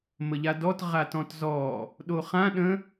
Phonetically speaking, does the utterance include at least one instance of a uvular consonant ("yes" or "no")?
yes